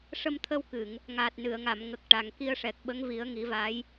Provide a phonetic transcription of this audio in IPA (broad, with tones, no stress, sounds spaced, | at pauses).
ʂ ə˧ m t̪ʰ ə˧ w k ɨ˨˩˨ ŋ | ŋ aː˨˩ t̚ n ɨ˨˩˨ ə̯ ŋ a˨˩˨ m ŋ ə˨˩ k̚ ʈ a˨˩ ŋ k i˧ ə̯ ʂ ɛ˨˩ k̚ ɓ ə˧˥ ŋ v i˨˩˦ ə̯ ŋ i˨˩˦ v a˧˥ j